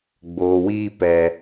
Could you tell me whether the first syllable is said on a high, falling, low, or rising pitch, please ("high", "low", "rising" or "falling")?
low